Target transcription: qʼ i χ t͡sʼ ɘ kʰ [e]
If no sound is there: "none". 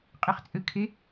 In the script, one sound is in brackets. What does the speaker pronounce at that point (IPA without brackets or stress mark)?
e